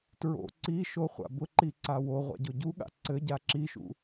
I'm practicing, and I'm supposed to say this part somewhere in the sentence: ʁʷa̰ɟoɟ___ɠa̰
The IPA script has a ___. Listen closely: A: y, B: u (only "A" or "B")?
B